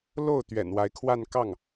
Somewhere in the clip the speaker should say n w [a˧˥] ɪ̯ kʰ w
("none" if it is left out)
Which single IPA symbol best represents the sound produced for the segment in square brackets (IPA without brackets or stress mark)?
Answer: a˧˥